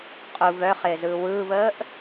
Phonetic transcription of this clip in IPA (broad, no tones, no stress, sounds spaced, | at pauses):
qʼ u v œ χ ɪː z ɯː w ɯː v əː ʔ